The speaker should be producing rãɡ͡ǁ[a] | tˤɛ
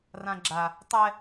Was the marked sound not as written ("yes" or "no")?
no